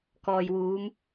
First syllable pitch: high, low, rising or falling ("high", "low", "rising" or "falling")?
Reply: low